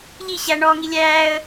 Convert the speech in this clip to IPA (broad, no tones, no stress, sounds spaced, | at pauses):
ʎ i ɕ æ ɳ ɔː ŋ i lʲ æː ə̯